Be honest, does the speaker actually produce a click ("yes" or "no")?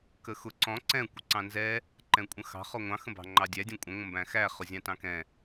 yes